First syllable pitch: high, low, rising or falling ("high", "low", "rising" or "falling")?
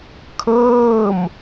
falling